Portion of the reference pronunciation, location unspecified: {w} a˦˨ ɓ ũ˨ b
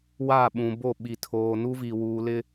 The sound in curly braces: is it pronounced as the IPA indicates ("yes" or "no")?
yes